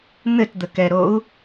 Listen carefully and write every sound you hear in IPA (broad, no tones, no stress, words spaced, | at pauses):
n̪ɘtd̪əkɛɾou̯